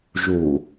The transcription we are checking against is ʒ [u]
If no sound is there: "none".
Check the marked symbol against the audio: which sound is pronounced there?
u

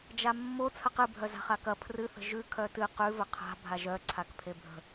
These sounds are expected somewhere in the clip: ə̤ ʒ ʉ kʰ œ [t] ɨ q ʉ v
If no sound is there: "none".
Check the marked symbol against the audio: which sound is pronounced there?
t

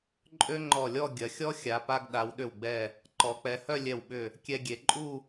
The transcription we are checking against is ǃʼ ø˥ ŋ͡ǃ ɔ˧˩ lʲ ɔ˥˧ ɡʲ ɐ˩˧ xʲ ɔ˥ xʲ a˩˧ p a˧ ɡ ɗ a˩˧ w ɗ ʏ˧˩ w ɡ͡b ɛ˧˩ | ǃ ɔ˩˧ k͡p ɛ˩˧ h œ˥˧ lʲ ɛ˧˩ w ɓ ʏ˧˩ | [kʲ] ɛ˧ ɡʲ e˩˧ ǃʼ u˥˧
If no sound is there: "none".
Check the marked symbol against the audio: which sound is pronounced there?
kʲ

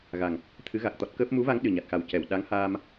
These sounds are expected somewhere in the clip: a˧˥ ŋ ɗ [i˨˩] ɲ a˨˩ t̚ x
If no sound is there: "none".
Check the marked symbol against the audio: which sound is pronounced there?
ɨ˨˩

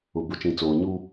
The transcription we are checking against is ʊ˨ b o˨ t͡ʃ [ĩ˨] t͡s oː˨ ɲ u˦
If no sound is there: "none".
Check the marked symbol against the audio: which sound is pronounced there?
ĩ˨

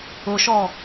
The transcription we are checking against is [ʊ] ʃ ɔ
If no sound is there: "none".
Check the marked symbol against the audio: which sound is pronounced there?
ʊ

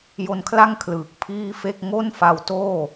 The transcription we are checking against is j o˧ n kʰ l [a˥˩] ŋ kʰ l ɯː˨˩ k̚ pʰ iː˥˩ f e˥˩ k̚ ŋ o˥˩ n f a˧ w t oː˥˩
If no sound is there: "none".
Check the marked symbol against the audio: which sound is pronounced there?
a˥˩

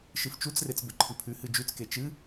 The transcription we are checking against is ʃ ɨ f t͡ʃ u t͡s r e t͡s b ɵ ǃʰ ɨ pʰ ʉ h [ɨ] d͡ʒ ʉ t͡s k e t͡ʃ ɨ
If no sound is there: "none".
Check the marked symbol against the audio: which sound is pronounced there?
ɨ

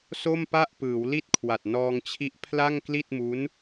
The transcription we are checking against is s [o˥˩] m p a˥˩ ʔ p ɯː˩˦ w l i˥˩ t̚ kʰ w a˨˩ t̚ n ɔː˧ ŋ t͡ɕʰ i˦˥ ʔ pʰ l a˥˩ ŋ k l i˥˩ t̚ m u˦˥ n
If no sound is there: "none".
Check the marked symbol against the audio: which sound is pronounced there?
o˥˩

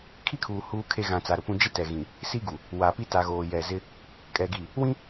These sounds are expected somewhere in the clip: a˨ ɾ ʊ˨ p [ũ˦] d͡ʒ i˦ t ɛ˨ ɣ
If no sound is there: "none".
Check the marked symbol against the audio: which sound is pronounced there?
ũ˦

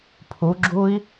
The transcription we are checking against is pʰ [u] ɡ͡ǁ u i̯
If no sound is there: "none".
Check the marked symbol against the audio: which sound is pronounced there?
u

